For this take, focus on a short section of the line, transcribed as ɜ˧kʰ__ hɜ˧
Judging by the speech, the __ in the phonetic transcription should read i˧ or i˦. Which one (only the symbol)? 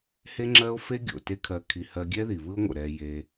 i˧